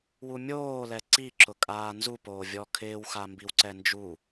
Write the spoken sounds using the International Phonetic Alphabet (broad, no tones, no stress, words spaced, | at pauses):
wumʲoːlɛ ǀiǁʊ kʼaːnzu poːvʲɔkʰɪːwxa mbiwǀɛnd͡ʒu